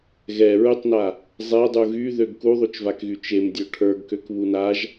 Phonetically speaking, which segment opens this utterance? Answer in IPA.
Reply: ɣ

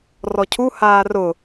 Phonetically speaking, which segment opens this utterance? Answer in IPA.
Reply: r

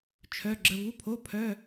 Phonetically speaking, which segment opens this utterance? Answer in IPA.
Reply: t͡ʃʰ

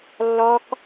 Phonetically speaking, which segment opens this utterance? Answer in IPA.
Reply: lː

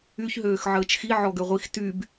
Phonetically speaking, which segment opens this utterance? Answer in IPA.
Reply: y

